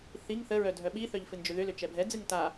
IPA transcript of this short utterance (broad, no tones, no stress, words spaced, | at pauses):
θiŋ θəɹœ dʱœɓiθœʎ fɨnd͡ʒʏðʏlʏ t͡ʃɛbʱɛd͡zɨŋ ta